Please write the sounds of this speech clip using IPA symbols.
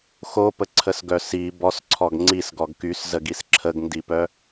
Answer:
xopəǀʰəsɡœ si bɔsǀʰɔɡ ŋ͡ǀisɡɔɡ kyszəɡis ǁʰəɡndipœ

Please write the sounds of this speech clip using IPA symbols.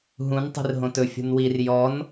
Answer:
ɦũn tˤi̤rɦõtɵ fʲṳnwir jɔn

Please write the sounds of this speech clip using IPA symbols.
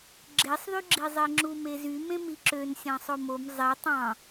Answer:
ɡ͡ǁesˤðyɡ͡ǁi zˤeŋ͡ǁumezy mẽmiǁøn sʲɑ̃sˤomom zˤe tˤɑ̃

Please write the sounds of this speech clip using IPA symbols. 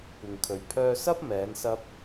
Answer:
kʷɪ˨ŋkʰɵ˨ɥ pʰœː˧sɐ˥p̚ mɛː˨˥nsɐ˥p̚

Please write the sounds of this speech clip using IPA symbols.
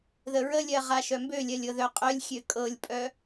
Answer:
ðəɹəlʲɜ ʁaʃœmbølʲɜlʲ ɤðœqʼœlʲxʲø kʼɤlʲpʼœ

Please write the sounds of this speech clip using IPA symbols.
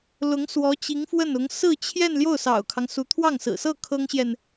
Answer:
lʊ˧˥ŋ swɔ˧˥t͡ɕi˧˥ŋfwə˥˩nʊ˧˥ŋ sɹ̩˥˧t͡ɕʰjɛ˥˧n ljo˥˩ʊ̯sɑ̰˨˩ʊ̯kʰɑ˦ŋ su˧˥t̪ʰwɑ˥˩ŋsɹ̩˨˩sɤ˥˩ kʰɤ˥ŋɕjɛ˨n

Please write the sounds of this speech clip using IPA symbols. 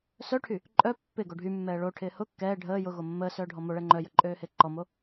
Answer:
sœʈʰy | ǃʼœ pːɪ ɡoɖʱymːɛː ɭoʈʰɪː hʊ kːɛː ɖʱəː jʊɣo mːəːsœː ɖʱɔmoɭɛ ŋ͡ǃœjə ǃʼøːhɪːǃɔmo

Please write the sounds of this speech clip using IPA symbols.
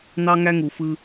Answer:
n̪ɑ˥ŋæ˥ŋu˩ fɯ˧

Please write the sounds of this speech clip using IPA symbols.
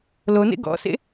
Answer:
lonḛ ɡɔ̰sḛ

